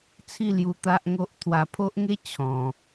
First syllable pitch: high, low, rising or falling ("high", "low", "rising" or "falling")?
falling